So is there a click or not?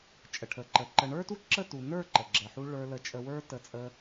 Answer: yes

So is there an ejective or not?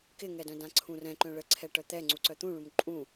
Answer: yes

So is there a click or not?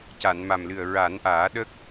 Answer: no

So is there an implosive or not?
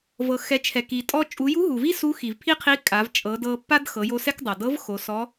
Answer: no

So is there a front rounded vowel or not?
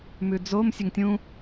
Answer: no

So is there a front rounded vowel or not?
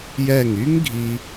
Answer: yes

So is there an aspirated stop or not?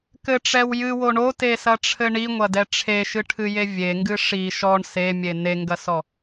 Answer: yes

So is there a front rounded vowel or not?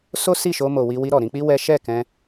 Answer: no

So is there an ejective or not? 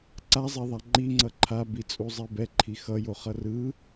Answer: yes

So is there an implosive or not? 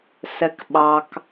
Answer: yes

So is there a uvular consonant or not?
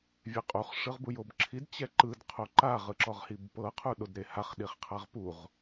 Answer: yes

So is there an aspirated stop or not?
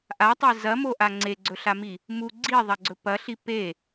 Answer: no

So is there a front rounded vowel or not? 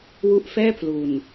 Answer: no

